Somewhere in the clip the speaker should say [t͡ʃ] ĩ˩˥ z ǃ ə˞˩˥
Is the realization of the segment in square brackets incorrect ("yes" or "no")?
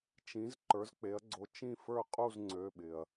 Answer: no